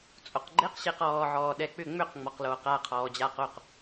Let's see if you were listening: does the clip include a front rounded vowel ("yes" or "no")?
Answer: yes